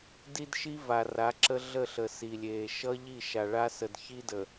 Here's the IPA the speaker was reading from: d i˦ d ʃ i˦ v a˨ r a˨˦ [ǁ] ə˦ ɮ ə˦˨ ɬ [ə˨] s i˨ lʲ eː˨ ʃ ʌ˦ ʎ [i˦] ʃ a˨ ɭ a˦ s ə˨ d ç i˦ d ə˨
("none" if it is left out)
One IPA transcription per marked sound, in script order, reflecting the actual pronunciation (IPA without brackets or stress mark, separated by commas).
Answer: ǁ, ə˨, i˦˨